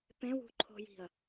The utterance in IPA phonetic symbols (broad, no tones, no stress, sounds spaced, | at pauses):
p ẽ w ṳ ǃʰ o̤ j i̤ ɐ̯